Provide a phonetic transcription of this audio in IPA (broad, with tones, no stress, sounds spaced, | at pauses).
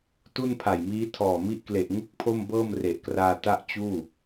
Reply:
t u˥˩ n pʰ a˨˩ j m iː˦˥ tʰ ɔː˨˩ m i˦˥ ʔ k l e˨˩ ʔ ŋ u˥˩ k̚ pʰ o˥˩ m b ɤː˥˩ m r e˨˩ ʔ k r aː˧ t a˥˩ ʔ t͡ɕ uː˥˩